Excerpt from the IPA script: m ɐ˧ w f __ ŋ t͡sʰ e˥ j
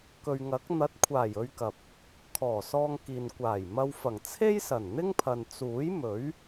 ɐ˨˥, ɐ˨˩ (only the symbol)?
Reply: ɐ˨˩